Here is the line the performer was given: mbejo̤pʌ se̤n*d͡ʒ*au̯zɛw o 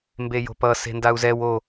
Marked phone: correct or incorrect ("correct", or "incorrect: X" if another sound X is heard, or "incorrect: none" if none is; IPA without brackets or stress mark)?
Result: incorrect: d